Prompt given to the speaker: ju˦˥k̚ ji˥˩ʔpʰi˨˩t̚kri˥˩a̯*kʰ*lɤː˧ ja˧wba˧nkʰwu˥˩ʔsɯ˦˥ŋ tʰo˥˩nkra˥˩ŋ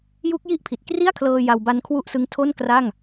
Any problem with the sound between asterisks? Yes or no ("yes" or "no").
no